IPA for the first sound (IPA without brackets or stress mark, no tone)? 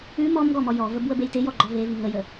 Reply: ʉ